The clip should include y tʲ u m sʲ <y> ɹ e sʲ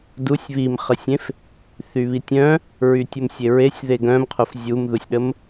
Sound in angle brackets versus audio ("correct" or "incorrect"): incorrect